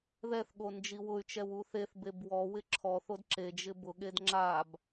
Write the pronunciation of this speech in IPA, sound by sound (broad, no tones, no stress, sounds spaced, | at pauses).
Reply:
ð ɛ θ ɠ o n d͡ʒ i w ʊ y̯ t͡ʃ ɛ w u θ e θ b e b w ɔ w ɪ ǁʰ ɔ θ o d ǁ e d͡ʒ ɪ b ʊ ɠ e d ŋ͡ǁ a b